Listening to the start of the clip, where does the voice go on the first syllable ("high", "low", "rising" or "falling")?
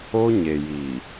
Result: high